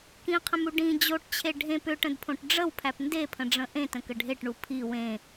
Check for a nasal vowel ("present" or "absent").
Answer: present